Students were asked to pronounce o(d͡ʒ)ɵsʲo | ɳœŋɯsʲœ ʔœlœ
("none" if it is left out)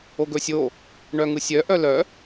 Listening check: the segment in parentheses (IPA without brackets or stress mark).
ɡ